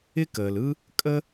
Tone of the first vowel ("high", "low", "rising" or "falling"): high